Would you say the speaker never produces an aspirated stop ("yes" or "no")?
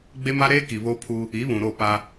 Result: no